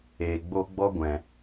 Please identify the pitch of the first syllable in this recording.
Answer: low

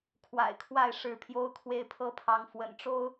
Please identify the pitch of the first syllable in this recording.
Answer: low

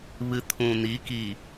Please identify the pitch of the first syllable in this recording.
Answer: low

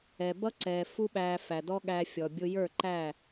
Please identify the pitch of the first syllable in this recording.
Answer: low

